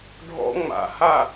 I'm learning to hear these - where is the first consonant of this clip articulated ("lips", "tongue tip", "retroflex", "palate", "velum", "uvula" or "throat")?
retroflex